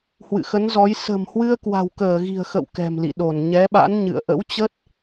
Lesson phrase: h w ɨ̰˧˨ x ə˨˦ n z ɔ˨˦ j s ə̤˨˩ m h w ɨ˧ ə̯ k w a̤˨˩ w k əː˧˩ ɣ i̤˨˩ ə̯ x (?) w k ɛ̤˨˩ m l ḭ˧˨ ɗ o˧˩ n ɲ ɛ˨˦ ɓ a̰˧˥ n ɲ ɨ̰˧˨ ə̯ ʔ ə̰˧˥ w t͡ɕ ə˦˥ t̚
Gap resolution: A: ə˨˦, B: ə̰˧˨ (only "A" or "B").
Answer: B